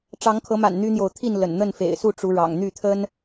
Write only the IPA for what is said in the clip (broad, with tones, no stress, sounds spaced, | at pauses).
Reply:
ʈ͡ʂ ɑ˨˦ ŋ kʰ ɤ˨˦ m a̰˨˩ n n̪ y˦ n̪ j o˨ ʊ̯ t̪ʰ i˥˨ n l ə̰˨˩ n n̪ ə˥˨ n f ḛ˨˩ ɪ̯ s u˥˨ ʈ͡ʂ u˨˦ ɻ ɑ̰˨˩ ŋ n̪ y˥˨ t̪ʰ ə˦ n